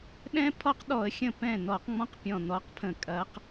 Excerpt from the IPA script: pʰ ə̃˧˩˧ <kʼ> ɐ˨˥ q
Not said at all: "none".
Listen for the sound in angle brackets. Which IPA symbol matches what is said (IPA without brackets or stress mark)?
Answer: kʼ